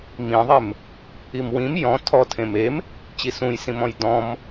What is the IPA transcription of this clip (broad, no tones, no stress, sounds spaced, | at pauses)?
m ĩ ðˤ e m | i m w ĩ m j ɔ̃ tʰ ɔ tʰ ẽ m e m | t͡ɕ i s ũ j s ĩ m ɔ̃ j d ɔ̃ m